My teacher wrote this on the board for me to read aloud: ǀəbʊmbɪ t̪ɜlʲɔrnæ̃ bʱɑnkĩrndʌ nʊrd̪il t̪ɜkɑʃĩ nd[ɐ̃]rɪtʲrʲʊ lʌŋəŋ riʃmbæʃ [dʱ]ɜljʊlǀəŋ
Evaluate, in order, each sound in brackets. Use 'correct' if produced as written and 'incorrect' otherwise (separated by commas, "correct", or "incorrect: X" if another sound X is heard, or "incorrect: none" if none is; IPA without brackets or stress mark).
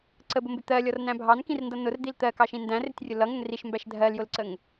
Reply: incorrect: æ̃, correct